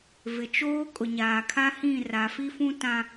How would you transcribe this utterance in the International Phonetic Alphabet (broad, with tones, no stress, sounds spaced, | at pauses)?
v ɪ˨ t͡ʃ oː˦ kʼ ʊ˨ ɲ aː˨ kʰ a˦ h ĩ˦˨ r a˨ f i˦ f ũ˦ t ã˦